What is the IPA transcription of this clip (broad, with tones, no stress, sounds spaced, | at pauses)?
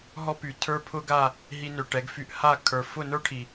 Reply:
ɦ ɔ˦ p y˨ tʰ ə˞˦ pʰ ʊ˦ ɡ a˦˨ | ɦ i˧ n ø˨ ʈ ɛ˨˦ ɡ f y˧ ʔ h a˦˨ kʰ ə˞˨ f ʊ˦˨ n ə˞˦ ʈʰ i˨